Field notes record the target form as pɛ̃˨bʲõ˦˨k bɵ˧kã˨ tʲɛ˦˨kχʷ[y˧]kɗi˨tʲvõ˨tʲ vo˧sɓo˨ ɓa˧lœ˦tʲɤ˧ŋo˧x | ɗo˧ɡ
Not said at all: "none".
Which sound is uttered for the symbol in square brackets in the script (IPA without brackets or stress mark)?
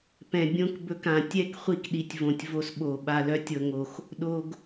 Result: i˧